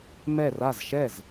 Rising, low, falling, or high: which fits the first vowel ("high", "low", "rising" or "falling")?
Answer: falling